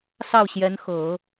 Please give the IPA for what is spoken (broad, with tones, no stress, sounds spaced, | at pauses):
s ɑ˥˩ ʊ̯ ɕ j ɛ˧˥ n x ɤ˨˩˦